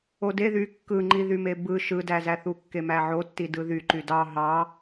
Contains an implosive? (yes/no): no